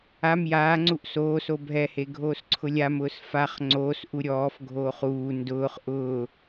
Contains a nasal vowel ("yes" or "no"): no